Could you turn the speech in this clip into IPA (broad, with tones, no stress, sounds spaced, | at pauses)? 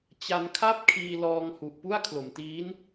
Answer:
t͡ɕ a˧ n kʰ a˥˩ p̚ kʰ iː˧ l ɔː˧ ŋ h u˨˩ ʔ p u˥˩ a̯ kʰ l o˩˦ m t iː˦˥ n